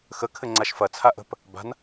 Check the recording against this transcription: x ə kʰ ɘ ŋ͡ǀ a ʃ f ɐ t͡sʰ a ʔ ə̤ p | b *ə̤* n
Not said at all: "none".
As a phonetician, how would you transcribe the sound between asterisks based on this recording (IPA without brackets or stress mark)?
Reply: a̤